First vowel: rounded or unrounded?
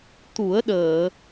rounded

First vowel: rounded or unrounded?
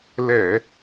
unrounded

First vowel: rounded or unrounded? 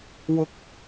rounded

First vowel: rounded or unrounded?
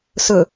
rounded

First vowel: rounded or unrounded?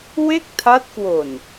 unrounded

